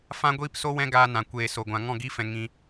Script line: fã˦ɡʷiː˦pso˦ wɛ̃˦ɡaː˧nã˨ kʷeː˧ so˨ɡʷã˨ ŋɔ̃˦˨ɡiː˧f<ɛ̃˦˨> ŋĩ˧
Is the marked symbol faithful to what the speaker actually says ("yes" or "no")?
no